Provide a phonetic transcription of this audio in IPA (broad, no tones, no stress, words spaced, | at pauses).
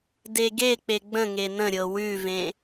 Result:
deɡek͡pe ɡ͡bə̃ŋe nə̃ɾʲɤ wʉvẽ